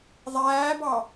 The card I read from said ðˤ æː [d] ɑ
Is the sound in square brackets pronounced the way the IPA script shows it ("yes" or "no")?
no